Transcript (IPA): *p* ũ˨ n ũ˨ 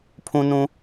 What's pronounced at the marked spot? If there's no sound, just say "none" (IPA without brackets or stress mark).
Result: pʰ